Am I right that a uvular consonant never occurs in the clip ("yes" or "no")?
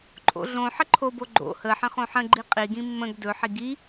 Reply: no